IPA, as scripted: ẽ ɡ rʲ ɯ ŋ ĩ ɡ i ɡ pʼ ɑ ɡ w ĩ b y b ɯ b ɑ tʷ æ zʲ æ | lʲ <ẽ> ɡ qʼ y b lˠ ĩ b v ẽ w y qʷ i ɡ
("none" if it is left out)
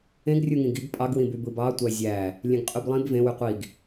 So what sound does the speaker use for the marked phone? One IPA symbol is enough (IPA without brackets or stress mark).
ẽ